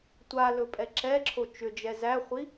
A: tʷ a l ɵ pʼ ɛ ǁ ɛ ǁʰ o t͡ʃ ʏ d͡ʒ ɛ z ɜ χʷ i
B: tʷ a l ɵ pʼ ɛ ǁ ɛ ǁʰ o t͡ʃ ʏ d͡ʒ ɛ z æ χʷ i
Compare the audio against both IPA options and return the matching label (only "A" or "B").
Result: B